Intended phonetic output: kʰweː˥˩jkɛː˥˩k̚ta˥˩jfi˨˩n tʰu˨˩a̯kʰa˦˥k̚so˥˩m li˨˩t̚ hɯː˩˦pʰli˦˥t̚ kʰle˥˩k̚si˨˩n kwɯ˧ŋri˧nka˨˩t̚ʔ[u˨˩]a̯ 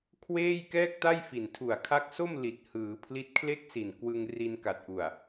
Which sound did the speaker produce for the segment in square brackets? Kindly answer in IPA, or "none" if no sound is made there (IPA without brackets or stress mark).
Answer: u˨˩